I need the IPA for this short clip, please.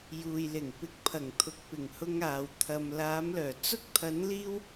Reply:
j uː˨ j l ɪ˨˩ ŋ p ɪ˨˥ k̚ pʰ ɐ˨˩ ŋ t̪ʰ ʊ˨ k̚ p ɪ˨˩ ŋ h ʊ˧ ŋ aː˨ w t̪ʰ ɐ˨ m l aː˨˧ m l œː˨˩ t͡s ʊ˧ k̚ t̪ʰ ɐ˨˧ n l iː˧ w

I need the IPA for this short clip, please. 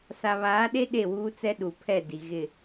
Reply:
s a˨ β aː˨˦ ɗ e˦ ɗ e˦˨ w uː˦ t͡s ɛ˦ ɗ u˨ pʰ ɛ˦˨ d i˨ ɣ ɪ˦˨

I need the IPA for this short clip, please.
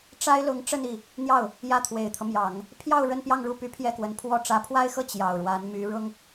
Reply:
ʈ͡ʂ a˥ ɪ̯ l ʊ˧˥ ŋ ʈ͡ʂ ə˥˧ n i˥˩ | n̪ j ɑ˥˩ ʊ̯ | j ä˥˩ t̪ʰ w e˨˩ ɪ̯ t̪ʰ ɤ˦ m j ɑ˨˩˦ ŋ | pʰ j ɑ˥˧ ʊ̯ ɻ ə˥˧ n p j ɑ˥˧ ŋ ɻ u˥˩ p y˧˥ pʰ j ɛ˥˩ k w ə˧˥ n pʰ w ɔ˥˩ ʈ͡ʂ ä˧˥ pʰ w a˥ ɪ̯ x ɤ˥˩ t͡ɕ j ɑ˨˩ ʊ̯ ɻ w a˧˥ n m y˧˥ ɻ ʊ˥ ŋ

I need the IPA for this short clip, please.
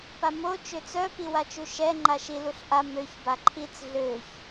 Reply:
p a m o t͡ʃ ø t͡s œ p i w a t͡ʃ u ʃ ɛ ŋ͡ǃ a ʃ i l u ɬ ʔ a m ø ç b a ǃʰ i t͡s ɮ ø ç

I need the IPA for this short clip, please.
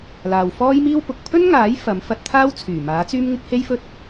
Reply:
l aː˨ w f ɔː˥ j m iː˥ w p ʊ˨ k̚ pʰ ɵ˥ n ŋ aː˨˥ j f ɐ˨˥ m f ɐ˨˥ t̚ t̪ʰ aː˥ w t͡sʰ yː˨˩ m aː˨˥ t͡s yː˥ m ŋ ɪ˥ k̚ h e˥ j f ɵ˥ t̚

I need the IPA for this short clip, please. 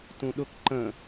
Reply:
t ũ ɗ ʊ k ǃ ə̃

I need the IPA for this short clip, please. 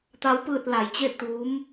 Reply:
t̪ a˧˥ w p ɯː˧ t̚ l a˩˧ j t͡ɕ e˥˨ t̪ u˧˥ m

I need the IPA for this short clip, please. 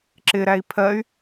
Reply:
ǁ ɪ ɾ æ i̯ pʰ ɜ y̯

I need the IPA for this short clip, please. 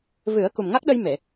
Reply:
v ɨ˨˩˦ ə̯ k u˨˩ m ŋ a˦˥ k̚ ɗ ə˧ j m e˨˩˨

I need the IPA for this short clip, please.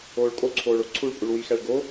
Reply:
oː ɭ kʼ o ǀʰ oː ɭ o ǀʰ u ɭ pʼ u ɭ w i x æ ɭ ɡ o

